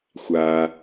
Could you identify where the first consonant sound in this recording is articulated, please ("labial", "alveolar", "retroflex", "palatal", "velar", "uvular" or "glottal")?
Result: velar